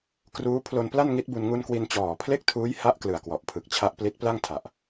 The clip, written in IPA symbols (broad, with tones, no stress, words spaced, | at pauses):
kruː˦˥ pʰlo˧npla˥˩n ŋi˦˥t̚bu˧n ŋu˧nkwi˧n t͡ɕɔː˨˩pʰle˥˩k̚tʰuː˦˥j ha˦˥ʔ klɯ˨˩a̯kwɔ˨˩ʔpʰɯ˨˩k̚ t͡ɕʰa˦˥ʔpli˦˥t̚pla˥˩ŋ tʰa˨˩ʔ